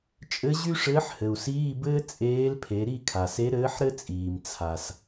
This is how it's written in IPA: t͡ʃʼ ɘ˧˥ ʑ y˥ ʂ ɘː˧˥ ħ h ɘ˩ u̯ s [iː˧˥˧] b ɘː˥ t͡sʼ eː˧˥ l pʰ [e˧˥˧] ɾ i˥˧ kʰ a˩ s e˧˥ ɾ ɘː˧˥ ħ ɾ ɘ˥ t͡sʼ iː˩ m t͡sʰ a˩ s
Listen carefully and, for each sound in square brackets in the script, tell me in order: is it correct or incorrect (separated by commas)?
correct, incorrect